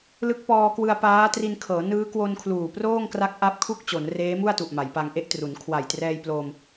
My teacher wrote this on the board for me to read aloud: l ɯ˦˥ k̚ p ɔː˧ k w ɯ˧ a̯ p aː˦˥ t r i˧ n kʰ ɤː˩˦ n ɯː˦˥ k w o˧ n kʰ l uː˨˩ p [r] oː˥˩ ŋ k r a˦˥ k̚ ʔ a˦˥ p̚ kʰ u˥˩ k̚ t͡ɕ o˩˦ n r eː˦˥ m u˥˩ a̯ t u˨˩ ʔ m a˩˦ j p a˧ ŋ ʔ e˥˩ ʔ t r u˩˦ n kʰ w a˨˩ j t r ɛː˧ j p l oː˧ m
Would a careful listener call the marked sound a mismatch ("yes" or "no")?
no